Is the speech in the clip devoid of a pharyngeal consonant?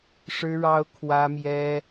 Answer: yes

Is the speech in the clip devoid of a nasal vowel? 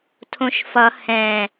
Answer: no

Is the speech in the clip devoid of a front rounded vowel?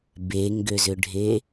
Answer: no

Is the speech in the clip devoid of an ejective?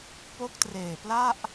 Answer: yes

